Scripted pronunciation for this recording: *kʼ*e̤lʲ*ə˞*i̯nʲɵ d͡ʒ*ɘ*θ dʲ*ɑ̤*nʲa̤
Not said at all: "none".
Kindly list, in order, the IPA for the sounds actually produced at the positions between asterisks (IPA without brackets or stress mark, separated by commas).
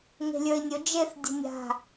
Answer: ŋ, ə˞, e, ə̤